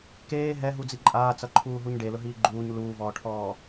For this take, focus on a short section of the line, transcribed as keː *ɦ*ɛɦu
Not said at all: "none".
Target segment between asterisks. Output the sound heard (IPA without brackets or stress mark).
ɦ